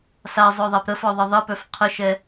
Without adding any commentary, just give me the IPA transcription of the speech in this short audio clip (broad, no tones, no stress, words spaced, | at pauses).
sazˤœðˤap ɾəfɔðˤə ðˤəpœf qʰəʃɛ